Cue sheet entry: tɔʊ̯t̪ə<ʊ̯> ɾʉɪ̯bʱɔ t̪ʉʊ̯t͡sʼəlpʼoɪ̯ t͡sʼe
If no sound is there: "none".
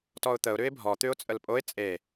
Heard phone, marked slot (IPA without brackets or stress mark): ʊ̯